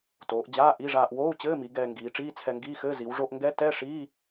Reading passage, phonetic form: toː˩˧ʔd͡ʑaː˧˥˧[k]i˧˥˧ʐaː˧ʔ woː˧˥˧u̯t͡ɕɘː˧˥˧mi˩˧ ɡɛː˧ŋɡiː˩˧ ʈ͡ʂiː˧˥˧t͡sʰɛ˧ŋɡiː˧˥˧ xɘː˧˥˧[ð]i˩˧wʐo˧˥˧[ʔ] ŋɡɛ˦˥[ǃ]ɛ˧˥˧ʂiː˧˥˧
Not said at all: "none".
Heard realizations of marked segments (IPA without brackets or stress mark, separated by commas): ʔ, z, ʔ, t